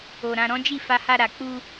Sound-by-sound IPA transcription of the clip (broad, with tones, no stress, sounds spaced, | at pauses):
o˨ ɾ ã˧ ɾ ɔ̃˦ d͡ʒ i˦˨ f a˧ h a˧ ɾ a˨ k͡p u˧